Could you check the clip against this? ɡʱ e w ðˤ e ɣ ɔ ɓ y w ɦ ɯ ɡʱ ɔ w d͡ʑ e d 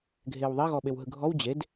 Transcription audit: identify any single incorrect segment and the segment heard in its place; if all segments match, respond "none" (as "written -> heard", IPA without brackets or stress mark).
y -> e